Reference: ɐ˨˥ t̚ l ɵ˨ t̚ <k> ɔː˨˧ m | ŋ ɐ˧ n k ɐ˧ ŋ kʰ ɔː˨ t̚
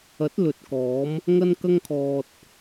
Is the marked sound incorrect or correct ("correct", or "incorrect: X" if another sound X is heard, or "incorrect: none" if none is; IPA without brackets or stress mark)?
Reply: correct